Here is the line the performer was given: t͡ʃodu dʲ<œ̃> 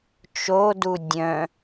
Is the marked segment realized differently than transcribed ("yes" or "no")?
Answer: no